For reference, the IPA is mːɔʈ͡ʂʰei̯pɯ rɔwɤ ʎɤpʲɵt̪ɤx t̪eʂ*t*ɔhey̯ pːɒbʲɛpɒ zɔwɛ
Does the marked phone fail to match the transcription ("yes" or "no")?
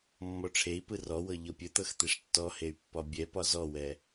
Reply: yes